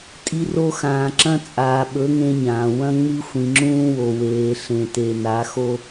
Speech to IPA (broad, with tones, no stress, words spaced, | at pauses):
tʼi˦ro˦ xãː˨ǁɐ̃˦ t͡sʼaː˨ɓɵ˨˦ ŋẽ˦ɲãː˨ wɐ̃˦ŋ͡mɨ˦ xʷĩ˨ŋ͡ǁũː˦wo˨ weː˨ ɬẽ˨te˨na˨˦ xo˦